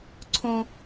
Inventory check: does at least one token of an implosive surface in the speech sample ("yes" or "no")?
no